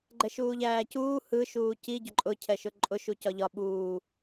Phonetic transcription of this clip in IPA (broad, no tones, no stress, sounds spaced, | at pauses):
ɡ͡ǃ ɛ ʃ uː ʎ æː c uː h ɯ ʃ uː c i ɟ ʊ ǃʼ ʊ cʰ ɛ ʃ ʊ ǃʼ ʊ ʃ u c ɒ ʎ ɒ ɓ uː